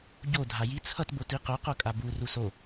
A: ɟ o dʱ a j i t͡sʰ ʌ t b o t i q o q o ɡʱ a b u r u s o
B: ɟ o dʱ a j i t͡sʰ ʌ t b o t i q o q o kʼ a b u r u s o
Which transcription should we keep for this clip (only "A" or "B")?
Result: B